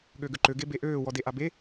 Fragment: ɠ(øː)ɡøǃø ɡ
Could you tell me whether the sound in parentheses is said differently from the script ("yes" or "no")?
yes